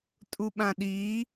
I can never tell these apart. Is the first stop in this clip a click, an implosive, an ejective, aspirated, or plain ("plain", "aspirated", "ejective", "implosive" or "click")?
ejective